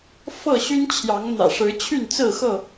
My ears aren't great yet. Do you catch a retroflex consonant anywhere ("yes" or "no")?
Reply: yes